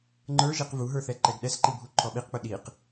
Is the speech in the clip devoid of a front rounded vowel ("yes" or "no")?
yes